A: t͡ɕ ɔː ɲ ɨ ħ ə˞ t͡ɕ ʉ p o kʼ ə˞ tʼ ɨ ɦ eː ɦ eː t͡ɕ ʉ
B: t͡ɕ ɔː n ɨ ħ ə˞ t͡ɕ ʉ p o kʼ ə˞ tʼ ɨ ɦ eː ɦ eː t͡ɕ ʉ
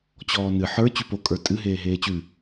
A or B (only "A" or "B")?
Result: B